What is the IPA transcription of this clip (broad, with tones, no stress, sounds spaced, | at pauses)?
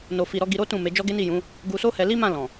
n o˧ f i˧ ɾ ɔ˧ ɡ i˧ ɾ o˦ t ũ˦˨ m e˨˦ d͡ʒ ɔ˦ ɡ e˦ n i˦˨ j ũ˨˦ | ɡ u˧ s o˦ h ɛ˧ l i˦ m ã˦˨ l ɔ̃˨